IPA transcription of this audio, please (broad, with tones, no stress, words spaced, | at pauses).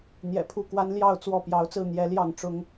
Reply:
n̪jɛ̰˨˩pʰu˥˨kwa˦n ljɑ˥˨ʊ̯ t͡swɔ˥˨ pjɑ˨˦ʊ̯t͡sɹ̩˥˨ n̪jɛ˨˦ljɑ˥˨ŋ ʈ͡ʂʊ˦ŋ